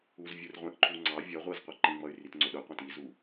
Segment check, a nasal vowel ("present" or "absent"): present